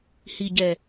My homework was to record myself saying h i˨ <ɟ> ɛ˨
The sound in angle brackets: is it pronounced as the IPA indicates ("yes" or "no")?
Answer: yes